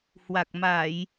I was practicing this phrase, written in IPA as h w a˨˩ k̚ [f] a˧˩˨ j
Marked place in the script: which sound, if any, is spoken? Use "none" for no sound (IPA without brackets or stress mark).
m